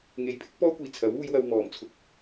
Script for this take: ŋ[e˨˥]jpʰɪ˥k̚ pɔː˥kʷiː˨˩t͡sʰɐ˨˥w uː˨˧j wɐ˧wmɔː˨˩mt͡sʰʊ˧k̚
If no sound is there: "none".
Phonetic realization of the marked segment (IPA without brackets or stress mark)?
e˨˥